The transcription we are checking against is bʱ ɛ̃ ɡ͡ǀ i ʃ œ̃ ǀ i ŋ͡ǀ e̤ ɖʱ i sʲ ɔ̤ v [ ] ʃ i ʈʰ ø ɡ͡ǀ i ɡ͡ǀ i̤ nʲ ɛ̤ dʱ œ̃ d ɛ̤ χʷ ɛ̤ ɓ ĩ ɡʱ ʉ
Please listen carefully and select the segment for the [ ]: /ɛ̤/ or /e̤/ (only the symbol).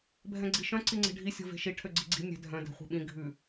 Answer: e̤